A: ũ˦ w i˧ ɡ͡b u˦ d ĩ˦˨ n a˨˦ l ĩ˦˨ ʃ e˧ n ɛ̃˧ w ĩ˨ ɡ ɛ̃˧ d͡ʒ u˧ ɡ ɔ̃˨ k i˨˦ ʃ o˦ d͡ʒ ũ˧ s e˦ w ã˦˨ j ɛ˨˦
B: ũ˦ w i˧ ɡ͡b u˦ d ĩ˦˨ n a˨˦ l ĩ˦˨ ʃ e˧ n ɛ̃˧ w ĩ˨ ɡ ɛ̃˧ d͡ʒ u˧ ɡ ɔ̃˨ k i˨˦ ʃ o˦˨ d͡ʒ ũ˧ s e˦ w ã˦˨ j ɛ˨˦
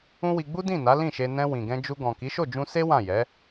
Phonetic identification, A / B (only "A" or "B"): B